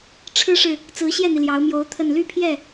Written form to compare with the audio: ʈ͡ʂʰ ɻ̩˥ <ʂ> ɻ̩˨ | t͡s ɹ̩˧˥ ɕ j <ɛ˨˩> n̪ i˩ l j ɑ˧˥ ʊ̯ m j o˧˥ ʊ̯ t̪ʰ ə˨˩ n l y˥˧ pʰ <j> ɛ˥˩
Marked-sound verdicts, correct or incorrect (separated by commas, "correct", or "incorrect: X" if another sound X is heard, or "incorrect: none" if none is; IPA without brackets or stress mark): correct, incorrect: ɛ˥˩, correct